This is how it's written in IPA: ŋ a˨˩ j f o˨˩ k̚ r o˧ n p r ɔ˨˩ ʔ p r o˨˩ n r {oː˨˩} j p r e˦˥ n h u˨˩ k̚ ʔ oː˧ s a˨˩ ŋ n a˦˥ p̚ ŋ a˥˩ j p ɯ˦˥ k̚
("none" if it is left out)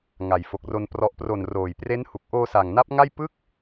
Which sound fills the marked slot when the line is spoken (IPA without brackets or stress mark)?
oː˨˩